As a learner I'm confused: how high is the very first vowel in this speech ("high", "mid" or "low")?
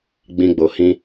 high